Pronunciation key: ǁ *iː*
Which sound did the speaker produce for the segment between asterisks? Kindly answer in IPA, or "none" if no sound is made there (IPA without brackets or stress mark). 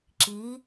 iː